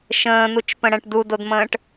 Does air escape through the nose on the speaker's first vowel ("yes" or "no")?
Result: yes